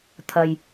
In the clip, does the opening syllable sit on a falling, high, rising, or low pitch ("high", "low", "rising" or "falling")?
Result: low